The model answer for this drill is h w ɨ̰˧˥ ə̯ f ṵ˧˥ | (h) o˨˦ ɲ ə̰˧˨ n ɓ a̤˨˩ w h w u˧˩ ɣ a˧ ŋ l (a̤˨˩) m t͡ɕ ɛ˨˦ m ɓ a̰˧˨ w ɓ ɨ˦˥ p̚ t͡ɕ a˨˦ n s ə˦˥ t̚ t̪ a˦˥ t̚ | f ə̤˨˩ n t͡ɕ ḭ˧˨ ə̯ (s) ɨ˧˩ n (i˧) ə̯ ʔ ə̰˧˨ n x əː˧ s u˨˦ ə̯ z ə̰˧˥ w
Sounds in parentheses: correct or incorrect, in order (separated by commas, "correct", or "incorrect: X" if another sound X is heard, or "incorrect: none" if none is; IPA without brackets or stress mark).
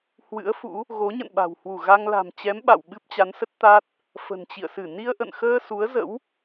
incorrect: ɣ, correct, correct, correct